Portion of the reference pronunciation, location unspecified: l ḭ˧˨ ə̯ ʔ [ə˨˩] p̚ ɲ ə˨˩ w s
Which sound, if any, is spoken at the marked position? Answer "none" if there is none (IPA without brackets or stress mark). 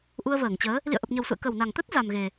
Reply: ə˨˩